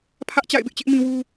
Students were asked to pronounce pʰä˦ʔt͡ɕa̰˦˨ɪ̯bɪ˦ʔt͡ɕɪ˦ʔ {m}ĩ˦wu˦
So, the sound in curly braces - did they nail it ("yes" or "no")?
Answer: yes